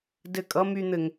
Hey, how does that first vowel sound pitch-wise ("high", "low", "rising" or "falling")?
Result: falling